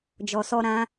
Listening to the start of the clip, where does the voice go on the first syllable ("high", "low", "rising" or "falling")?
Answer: low